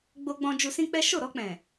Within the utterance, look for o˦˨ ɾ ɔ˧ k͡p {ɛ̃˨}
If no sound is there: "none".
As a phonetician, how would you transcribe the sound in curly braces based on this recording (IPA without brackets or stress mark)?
ɛ̃˨